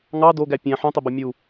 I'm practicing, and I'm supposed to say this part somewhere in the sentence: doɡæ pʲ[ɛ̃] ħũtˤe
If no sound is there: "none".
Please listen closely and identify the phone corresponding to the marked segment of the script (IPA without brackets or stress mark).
æ̃